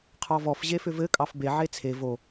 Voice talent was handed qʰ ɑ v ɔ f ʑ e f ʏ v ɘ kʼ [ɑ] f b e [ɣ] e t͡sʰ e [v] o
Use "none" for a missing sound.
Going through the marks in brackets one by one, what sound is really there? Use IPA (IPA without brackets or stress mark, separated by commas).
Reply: ɑ, ʕ, v